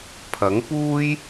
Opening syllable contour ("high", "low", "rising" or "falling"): rising